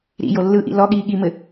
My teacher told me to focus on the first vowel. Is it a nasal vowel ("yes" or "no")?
no